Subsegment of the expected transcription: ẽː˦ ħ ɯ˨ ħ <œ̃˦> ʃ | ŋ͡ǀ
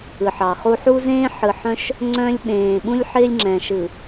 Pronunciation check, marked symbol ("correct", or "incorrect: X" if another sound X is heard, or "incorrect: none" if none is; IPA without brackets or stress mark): correct